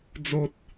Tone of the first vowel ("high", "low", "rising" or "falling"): high